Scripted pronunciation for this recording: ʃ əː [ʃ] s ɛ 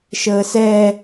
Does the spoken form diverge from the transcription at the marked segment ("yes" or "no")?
yes